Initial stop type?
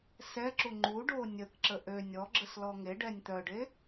click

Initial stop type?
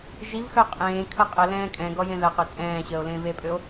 ejective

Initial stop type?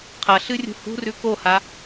aspirated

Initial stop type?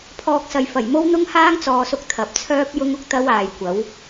aspirated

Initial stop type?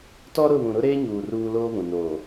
plain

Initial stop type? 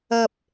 plain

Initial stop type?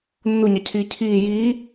aspirated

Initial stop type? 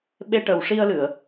implosive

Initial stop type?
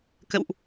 plain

